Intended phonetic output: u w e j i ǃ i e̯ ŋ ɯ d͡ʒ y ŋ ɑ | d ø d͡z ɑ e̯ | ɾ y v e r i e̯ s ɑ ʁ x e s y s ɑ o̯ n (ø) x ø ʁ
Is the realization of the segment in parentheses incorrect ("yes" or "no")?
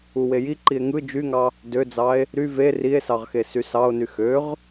yes